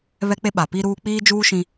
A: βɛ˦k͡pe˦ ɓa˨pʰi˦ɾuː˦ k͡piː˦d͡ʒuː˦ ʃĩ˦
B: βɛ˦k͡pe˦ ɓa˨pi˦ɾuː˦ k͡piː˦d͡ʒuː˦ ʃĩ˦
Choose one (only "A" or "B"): B